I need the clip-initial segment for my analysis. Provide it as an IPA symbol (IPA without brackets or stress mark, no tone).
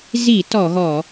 z